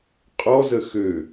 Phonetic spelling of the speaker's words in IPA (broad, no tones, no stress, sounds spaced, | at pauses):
qʼ ɔ z ə x ø